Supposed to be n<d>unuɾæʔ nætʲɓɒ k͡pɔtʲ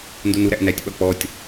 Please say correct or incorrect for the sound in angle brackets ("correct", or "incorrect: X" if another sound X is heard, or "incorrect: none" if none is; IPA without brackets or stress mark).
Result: correct